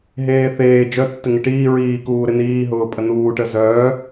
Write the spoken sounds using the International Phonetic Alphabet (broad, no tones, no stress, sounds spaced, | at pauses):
ɦ eː θ eː d͡ʒ œ tː ɪ ŋ ɪ ʈ iː ɹ iː k uː ɾ ɪ n iː ɦ ʊː pʼ ə n uː ʈ ə z œː